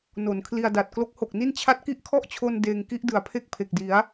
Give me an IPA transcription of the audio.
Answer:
n o˩˦ n kʰ l i˧ a̯ d a˨˩ t̚ k l o˦˥ k̚ h o˨˩ k̚ n i˥˩ n t͡ɕʰ a˦˥ t̚ k i˦˥ ʔ kʰ ɔ˥˩ ʔ t͡ɕʰ o˧ n d eː˧ ŋ k i˦˥ ʔ d ɯ˩˦ a̯ pʰ e˥˩ k̚ pʰ e˨˩ k̚ d i˩˦ a̯

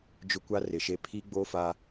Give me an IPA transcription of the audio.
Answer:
d͡ʒ ʊ˦ kʷ a˦ r ɪ˨ ʃ e˦ pʰ i˦ ɡ͡b o˦ f aː˦

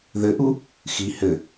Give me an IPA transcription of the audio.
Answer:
ð ɘ ʔ u | x i h ɘ

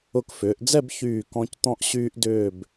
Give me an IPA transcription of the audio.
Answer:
ʊ˧˩ k f ʏː˩˧ ʔ d͡z ɛ˥˧ b ç yː˧˩ k ɔ̃˧ c t̪ ɔ̃˥ ʔ ɕ yː˥ ʔ d ʏː˥˧ b

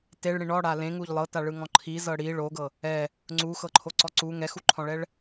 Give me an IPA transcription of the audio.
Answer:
t e ɭ ɽ ĩ ɳ ɔ ɽ a l ẽ ŋ u ʎ lˠ ɤ t a ɭ ɯ ŋ ɔ̃ ǃʰ i z ɤ ɽ i ɭ o ɡ ɤ | ɛ | ŋ͡ǀ u x ɤ ǃʰ o ǀ ɔ ǀ u ŋ ɛ x u ǃʰ ɔ̃ ɭ ɛ ɭ

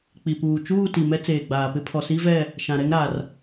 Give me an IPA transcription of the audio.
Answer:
k͡p i˨ p uː˨ t͡ʃ uː˦˨ t i˨ m ɛ˦ t͡s eː˨ ɡ͡b aː˨ p ɪ˦ pʰ ɔ˨ s i˦ v ɛ˦˨ | ʃ ã˨ ɾ ɛ˦ ŋ ɾ a˨ r

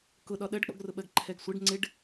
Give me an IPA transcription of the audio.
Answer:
k ʊ ɗ ɒ ɗ ɜ ɖ k͡p ɔ̰ ɡ r ʊ ɓ ɜ ɡ ǃʰ ɛ ɡ sʷ ɪ ɖ ŋ͡ǀ ɪ ɖ

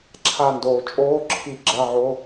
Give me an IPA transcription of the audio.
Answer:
ǁʰ a˧˩ n d oː˩ t͡ʃʼ oː˧˥˧ ǁʰ i˧˩ ɡ͡ǁ ɐ˧˥˧ ʕ o˧˥˧

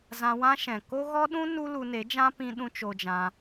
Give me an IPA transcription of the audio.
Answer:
z ã˧ w ã˦ ʃ ɛ̃˨ k o˦ ɣ ɔ˦ ɗ ũ˦ n u˦ l u˧ n e˨˦ d͡ʒ ã˦ p ĩ˦ ɗ ũ˦ t͡ʃ o˧ d͡ʒ ã˧

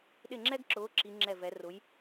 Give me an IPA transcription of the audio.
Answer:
ɗ ɪ˦˨ ŋ͡ǁ ɛ˥ ɡ ǁ ʊː˨˦ ǁ i˨˦ ŋ͡ǁ ɛ˦˨ v ɛ˨˦ r ʊ˨˦ j

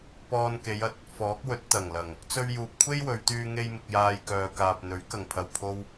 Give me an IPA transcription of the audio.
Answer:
p ɔː˧ n k e˨˧ j ɐ˨ t̚ | f ɔː˨˥ k̚ w ɵ˨˥ t̚ t̪ ɐ˨˩ ŋ l ɐ˨˩ ŋ | t͡s ɵ˧ ɥ j uː˨ p̚ kʷʰ e˥ j w ɵ˨˧ ɥ t̪ yː˧ ŋ e˧ j m ɪ˨ k̚ j aː˧ j k œː˨ k aː˨ p̚ n̪ ɵ˨˥ ɥ k ɐ˨˩ ŋ pʰ ɐ˨˩ w pʰ o˧ w

